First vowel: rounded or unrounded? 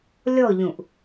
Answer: rounded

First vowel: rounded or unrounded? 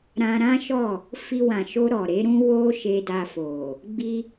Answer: unrounded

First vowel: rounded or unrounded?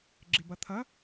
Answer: unrounded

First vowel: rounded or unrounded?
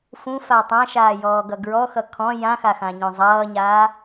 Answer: rounded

